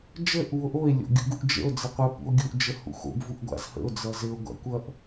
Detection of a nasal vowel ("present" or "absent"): absent